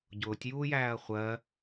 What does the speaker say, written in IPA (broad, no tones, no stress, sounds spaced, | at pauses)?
ɟ ʊː tʲ j uː j æː ɐ̯ χʷ ɜ